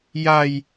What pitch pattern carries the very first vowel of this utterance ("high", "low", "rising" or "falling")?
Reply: high